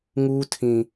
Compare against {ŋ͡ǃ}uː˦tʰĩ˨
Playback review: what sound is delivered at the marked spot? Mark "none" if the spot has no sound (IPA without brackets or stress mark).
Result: ŋ